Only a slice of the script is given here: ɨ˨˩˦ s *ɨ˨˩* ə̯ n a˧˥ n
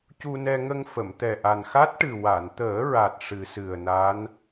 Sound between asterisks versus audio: correct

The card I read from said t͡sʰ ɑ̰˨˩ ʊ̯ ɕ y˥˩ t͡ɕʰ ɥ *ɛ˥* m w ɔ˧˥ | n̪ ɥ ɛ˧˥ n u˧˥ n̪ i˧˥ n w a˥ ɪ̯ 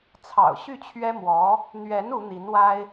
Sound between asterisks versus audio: correct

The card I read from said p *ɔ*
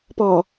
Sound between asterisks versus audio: correct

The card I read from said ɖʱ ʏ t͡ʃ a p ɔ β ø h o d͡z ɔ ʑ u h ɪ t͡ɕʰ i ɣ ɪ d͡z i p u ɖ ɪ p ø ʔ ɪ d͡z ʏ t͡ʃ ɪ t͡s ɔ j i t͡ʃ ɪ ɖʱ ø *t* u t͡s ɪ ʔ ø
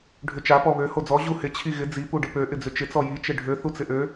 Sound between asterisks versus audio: incorrect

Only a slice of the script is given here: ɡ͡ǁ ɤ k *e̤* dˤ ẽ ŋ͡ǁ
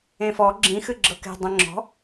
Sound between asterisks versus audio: correct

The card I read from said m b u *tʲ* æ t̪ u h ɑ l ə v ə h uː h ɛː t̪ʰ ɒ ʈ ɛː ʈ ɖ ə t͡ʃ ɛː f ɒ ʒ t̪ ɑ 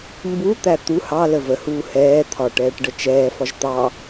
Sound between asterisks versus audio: incorrect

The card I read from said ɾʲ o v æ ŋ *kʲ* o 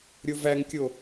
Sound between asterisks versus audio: correct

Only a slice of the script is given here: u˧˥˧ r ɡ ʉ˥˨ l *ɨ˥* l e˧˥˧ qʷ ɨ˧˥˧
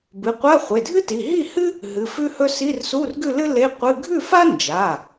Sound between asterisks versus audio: correct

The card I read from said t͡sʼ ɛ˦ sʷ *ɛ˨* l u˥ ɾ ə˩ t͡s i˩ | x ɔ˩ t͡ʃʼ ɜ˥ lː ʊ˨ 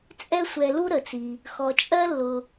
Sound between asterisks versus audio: correct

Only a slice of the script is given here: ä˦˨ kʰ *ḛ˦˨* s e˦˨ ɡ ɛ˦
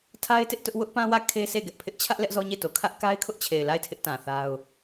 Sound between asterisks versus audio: incorrect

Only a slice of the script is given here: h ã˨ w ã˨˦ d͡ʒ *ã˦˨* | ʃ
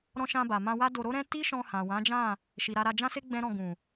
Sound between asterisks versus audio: correct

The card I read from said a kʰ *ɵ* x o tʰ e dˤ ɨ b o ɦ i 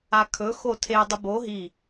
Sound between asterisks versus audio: correct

